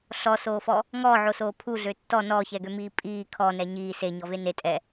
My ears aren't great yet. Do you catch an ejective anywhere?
yes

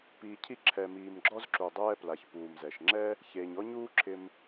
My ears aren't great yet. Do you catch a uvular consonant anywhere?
no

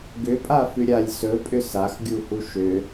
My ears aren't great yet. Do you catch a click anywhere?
no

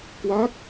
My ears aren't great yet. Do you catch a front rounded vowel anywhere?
no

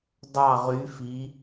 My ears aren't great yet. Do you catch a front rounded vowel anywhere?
yes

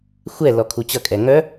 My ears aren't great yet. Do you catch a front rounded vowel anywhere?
yes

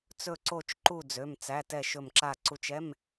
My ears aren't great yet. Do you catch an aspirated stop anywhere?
no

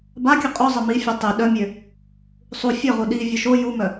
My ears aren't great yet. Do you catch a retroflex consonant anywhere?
no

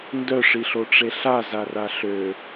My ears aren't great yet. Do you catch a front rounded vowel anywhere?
yes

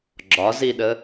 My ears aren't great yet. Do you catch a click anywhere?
yes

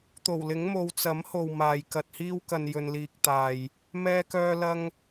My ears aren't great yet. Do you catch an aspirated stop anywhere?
no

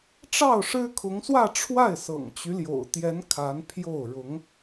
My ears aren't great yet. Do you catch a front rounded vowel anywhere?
yes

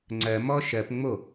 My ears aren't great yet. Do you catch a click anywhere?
yes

